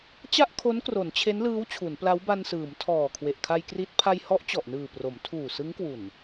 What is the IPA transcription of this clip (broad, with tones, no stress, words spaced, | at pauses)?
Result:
t͡ɕa˥˩ʔkʰo˦˥nkro˩˦n t͡ɕʰe˦˥nlɯː˦˥w t͡ɕʰu˩˦npla˦˥wba˧nsɯː˩˦m tʰɔː˨˩kʰwe˨˩ʔ kʰa˧jkri˦˥t̚ pʰa˧jhɔ˦˥ʔt͡ɕɔ˨˩ʔnɯː˨˩ pro˩˦mtʰuː˨˩sɯ˦˥ŋkwu˨˩n